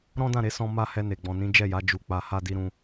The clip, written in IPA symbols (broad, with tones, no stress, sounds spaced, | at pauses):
ɾ ɔ̃˦ d ã˦˨ ɾ e˨˦ s ɔ̃˧ m a˦ h ɛ˧ n e˨ ɡ͡b ɔ̃˨ n ĩ˨˦ d͡ʒ ɛ˦˨ j a˨˦ d͡ʒ u˧ k͡p a˧ h a˦ d i˦ ɾ ũ˦